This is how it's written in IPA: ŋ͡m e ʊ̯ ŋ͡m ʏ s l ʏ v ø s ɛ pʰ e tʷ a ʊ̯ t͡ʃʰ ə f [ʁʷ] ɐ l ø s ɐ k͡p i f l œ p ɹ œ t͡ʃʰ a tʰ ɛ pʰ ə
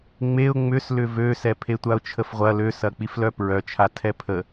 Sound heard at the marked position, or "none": ʁʷ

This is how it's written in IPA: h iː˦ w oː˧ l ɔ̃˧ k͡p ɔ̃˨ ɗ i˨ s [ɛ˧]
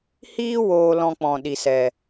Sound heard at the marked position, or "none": ɛ˨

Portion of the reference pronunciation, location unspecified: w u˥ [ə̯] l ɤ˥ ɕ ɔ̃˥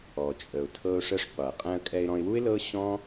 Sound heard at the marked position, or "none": ɪ̯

